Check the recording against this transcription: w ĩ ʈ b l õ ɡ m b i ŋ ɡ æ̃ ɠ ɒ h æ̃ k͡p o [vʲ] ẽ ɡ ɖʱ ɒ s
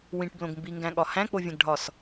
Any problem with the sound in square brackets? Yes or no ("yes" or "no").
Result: no